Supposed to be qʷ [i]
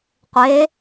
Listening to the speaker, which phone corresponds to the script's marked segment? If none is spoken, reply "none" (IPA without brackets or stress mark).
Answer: e